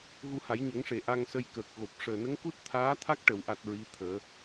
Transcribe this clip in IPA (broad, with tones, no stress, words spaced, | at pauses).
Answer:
ɣu˧ha˨˩˦jɲə˨˩˦ŋʂe˨˩˨ ʔa˧ŋsə˧jkəː˨˩k̚ ɣo˨˩p̚ ʂəː˨˩nə˧˥ŋku˦˥t̚ t̪ʰaː˧˥t̪ʰa˦˥k̚ʈə˨˩˨wʔa˨˩t̚ ɹi˧˥t̪ʰəː˨˩˦